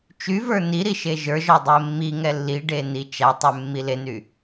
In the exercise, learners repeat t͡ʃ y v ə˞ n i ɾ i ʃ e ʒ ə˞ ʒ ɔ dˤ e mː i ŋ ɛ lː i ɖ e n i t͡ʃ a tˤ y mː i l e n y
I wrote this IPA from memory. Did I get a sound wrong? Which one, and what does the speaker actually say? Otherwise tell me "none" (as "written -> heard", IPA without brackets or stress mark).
none